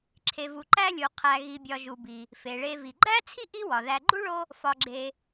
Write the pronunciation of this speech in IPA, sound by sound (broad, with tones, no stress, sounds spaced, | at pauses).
ǁʰ e˨ v u˨ ǃ æ˥ lʲ u˨ qʰ æ˨ ɣ i˨ bʲ ɒ˨ ʒ u˨ b i˨ | f e˩ ɭ e˨ v i˩ ɡ͡ǃ æ˥ t͡sʰ i˥ ʔ i˥ w ɒ˩ ð æ˨ ɡ͡ǃ u˥ ɭ o˦ | f ɒ˨ ɡ͡ǁ e˨